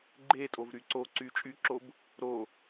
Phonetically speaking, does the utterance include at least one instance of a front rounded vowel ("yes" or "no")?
yes